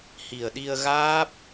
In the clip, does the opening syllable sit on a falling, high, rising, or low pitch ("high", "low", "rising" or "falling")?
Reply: low